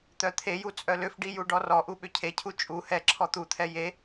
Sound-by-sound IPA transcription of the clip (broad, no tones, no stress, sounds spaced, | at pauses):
t̪ œ t̪ʰ e j u t͡sʼ œ l ʏ f ɖ i j u ɖ ɔ r ɔ ʔ u ɓ ʏ cʰ e cʰ u t͡ʃʼ u h ɛ ǁʰ ɔ t̪ u t̪ʰ ɛ j e